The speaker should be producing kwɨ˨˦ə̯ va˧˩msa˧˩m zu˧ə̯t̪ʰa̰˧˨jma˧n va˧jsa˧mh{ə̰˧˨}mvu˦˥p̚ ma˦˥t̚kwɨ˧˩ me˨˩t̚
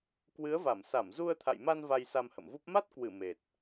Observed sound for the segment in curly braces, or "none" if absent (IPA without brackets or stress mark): ə̰˧˨